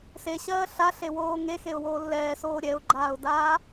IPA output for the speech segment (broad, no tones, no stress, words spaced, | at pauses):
seɕɜː ɬaɬewoː ŋexeʊ̯woː lːɛːsoː ɾʲɛʊ̯ɡ͡ǃaːʊ̯daː